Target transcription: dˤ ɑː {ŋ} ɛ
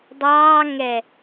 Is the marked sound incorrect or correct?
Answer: correct